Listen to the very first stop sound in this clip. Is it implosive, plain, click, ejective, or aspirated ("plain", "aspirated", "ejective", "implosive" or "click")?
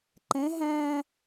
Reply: click